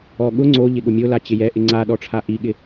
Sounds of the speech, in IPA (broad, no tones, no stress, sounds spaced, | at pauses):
ɔ ɠ ʊ ŋ͡ǀ o ʎ ɪ ɠ ʊ mʲ o l a t͡ɕ ɪ j ɛ ʔ ɪ ŋ͡ǀ a ɗ ɔ ʈ͡ʂʰ a ʔ i ɠ ɪ